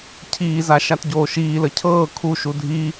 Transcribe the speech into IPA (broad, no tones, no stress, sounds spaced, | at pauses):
cʰ iː z a ʃ a t ɟ oː ʃ iː l ə cʰ ɤː kʰ u ʃ u dʱ i